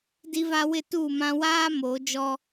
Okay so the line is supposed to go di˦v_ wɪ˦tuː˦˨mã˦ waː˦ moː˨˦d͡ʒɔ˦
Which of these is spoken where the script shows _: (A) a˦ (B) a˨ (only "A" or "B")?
A